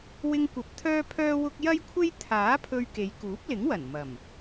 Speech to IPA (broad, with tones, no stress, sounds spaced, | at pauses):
w ɪ˧ ŋ kʷ ɐ˨ p̚ t̪ʰ œː˥ pʰ œː˥ w ʊ˥ k̚ j ɐ˥ j kʷʰ e˥ j t̪ʰ aː˨˥ pʰ ɵ˧ ɥ k e˨˧ j k uː˨˥ p̚ l ɪ˨˥ ŋ w ɐ˨˩ n m ɐ˨˩ m